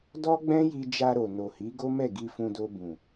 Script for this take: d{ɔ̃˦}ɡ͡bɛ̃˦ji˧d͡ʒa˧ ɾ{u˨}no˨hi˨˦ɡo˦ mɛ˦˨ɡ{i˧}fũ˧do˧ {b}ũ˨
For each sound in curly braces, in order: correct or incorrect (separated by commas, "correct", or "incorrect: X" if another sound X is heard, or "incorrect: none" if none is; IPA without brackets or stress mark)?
incorrect: ɔ˦, incorrect: o˨, correct, correct